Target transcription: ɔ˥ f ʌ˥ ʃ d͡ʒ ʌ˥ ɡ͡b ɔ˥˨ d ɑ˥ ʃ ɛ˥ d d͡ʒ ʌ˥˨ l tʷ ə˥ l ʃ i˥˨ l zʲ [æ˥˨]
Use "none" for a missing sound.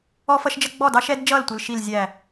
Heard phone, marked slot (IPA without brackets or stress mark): æ˥˨